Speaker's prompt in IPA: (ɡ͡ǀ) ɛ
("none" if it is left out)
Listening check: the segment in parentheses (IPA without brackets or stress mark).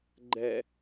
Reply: ɡ͡ǃ